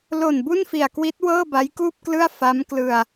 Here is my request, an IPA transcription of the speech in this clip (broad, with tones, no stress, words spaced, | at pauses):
lo˨˩n bu˥˩nfi˨˩a̯kwi˦˥t̚ wɤː˥˩ba˦˥jkuː˥˩p̚klɯ˥˩a̯ fa˦˥mklɯ˧a̯